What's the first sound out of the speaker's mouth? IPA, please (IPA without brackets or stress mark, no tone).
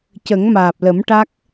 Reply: c